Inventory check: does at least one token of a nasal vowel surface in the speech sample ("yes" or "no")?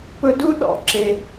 no